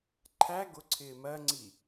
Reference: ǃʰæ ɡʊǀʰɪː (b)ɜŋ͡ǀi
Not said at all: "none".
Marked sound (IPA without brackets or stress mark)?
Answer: m